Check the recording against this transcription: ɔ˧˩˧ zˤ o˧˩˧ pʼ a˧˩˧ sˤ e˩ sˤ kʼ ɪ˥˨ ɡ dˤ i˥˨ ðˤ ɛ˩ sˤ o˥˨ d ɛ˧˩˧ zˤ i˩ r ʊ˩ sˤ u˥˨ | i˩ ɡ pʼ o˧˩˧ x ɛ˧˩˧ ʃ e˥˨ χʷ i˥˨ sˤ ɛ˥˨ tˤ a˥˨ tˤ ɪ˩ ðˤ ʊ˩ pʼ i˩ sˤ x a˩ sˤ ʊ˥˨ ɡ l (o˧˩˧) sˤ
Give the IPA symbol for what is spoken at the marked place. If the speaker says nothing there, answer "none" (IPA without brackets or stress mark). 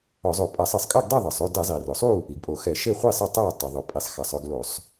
o˧˩˧